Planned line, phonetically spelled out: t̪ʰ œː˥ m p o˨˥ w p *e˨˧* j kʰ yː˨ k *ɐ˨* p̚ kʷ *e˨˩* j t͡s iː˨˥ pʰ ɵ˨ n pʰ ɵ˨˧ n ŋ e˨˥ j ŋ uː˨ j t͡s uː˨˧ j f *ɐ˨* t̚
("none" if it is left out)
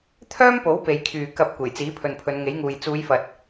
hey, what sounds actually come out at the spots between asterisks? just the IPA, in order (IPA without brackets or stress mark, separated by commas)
e˨˧, ɐ˨, e˨˩, ɐ˨